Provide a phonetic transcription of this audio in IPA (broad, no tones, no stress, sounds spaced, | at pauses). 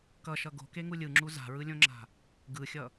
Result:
k ʌ ʃ ʌ ɡ o̤ k e ŋ u lʲ ɯ ŋ͡ǁ u z a̤ ɹ ɯ lʲ õ ŋ͡ǁ a̤ | ɡ ɯ xʲ ʌ